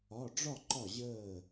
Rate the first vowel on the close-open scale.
open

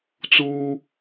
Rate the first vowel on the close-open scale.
close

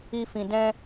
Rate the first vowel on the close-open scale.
close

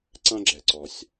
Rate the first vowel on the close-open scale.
open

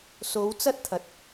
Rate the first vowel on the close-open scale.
mid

